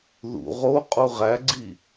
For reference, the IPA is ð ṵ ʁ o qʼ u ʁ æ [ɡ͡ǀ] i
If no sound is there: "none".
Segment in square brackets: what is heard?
ɡ͡ǀ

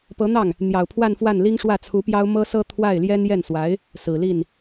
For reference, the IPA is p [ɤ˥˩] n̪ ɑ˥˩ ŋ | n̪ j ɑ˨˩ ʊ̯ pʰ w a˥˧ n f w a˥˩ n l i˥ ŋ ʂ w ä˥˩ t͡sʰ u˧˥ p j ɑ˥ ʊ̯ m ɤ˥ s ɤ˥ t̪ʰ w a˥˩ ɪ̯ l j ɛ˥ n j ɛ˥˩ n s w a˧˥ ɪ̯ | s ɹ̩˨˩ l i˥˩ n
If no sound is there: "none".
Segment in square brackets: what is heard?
ɤ˧˥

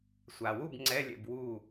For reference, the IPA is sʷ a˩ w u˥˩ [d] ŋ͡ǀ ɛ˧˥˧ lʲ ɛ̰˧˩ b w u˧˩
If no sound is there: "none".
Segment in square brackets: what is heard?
b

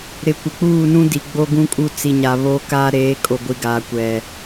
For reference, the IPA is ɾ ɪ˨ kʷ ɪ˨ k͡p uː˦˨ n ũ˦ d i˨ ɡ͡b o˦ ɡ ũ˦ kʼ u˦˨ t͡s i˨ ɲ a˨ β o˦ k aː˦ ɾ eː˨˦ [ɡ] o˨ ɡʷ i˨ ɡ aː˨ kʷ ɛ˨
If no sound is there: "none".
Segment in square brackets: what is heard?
kʼ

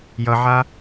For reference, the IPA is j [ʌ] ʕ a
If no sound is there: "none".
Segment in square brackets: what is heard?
ʌ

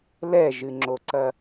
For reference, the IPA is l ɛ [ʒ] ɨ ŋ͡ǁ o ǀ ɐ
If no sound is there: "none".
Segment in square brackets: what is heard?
ʒ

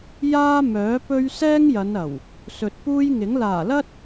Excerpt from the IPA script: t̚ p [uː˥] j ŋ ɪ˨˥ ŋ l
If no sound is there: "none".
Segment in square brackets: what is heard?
uː˥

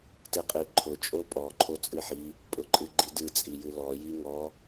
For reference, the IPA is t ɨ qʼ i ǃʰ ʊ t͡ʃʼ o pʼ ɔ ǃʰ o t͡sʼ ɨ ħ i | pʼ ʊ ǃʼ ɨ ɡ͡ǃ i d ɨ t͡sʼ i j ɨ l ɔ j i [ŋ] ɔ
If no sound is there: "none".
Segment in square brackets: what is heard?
ŋ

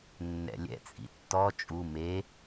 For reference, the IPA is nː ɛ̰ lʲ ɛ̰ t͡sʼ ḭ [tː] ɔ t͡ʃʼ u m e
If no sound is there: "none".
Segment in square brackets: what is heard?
tː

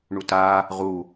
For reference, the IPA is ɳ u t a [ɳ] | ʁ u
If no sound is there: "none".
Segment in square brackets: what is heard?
none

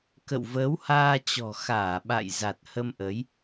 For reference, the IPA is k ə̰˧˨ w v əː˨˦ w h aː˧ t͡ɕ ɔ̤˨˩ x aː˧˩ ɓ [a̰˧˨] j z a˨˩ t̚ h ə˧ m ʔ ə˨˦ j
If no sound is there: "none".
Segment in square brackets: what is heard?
a̰˧˨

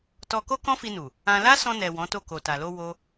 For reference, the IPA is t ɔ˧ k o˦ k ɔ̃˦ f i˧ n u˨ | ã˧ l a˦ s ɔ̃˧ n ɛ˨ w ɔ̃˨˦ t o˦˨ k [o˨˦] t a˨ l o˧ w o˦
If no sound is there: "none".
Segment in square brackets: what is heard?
o˨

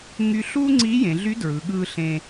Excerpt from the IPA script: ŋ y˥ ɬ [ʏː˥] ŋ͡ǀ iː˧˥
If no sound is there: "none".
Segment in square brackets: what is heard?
uː˥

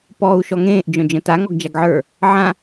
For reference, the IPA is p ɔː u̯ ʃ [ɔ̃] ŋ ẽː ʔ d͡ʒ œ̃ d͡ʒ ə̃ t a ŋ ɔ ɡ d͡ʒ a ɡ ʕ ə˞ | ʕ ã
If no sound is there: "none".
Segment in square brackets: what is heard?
ɔ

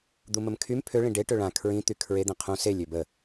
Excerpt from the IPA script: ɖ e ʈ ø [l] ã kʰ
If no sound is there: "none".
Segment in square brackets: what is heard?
ɭ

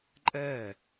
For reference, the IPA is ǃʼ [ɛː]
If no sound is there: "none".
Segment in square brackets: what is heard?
ɛː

